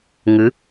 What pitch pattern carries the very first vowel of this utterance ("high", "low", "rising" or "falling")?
rising